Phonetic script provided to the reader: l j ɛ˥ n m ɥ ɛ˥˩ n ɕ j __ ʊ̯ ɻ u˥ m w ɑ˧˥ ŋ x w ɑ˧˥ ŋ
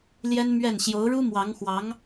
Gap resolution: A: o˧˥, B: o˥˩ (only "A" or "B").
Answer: A